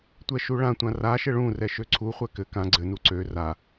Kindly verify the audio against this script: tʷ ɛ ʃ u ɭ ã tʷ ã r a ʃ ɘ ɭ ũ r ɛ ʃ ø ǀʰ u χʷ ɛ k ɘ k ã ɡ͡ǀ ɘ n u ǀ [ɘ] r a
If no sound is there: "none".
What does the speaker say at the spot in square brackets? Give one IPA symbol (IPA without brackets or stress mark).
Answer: ø